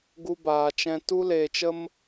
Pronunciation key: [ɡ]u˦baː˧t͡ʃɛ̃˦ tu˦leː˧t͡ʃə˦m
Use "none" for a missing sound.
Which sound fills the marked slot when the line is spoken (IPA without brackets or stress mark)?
ɡ